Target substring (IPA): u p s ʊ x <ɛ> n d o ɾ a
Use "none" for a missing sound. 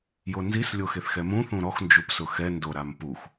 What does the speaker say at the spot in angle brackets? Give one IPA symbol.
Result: ɛ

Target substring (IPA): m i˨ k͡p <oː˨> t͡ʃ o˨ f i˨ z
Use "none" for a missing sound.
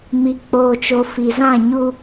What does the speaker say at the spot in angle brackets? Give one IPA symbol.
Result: oː˨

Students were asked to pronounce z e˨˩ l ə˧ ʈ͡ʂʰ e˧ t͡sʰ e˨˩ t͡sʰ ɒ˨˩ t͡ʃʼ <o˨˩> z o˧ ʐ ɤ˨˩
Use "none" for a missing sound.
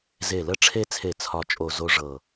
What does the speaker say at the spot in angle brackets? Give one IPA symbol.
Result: o˨˩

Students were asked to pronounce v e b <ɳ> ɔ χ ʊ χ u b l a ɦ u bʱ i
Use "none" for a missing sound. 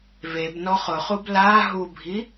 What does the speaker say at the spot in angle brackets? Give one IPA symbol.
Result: n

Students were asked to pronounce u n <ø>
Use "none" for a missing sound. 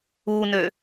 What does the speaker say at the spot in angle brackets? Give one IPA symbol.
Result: ø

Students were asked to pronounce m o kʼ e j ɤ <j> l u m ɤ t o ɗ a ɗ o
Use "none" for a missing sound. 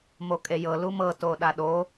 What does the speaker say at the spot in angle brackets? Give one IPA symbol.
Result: none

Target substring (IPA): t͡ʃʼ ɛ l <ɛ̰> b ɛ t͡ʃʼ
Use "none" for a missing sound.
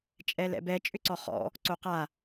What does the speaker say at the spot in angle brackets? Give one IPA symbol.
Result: ɛ̰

